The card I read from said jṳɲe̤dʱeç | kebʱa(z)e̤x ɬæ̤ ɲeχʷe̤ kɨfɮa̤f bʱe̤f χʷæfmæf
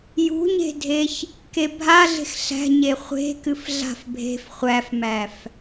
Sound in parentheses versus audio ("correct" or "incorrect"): incorrect